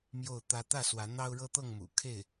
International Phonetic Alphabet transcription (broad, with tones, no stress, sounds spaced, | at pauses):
m j o˥˩ ʊ̯ t̪ ä˥ t̪ ä˥˩ s w ä˧˥ n̪ ɑ˥ ʊ̯ ɻ ɤ˥ t̪ ɤ˥˩ ŋ m ṵ˨˩ kʰ e˥˩ ɪ̯